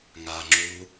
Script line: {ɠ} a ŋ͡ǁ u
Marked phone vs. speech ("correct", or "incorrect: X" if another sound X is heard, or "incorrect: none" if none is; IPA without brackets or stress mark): incorrect: ŋ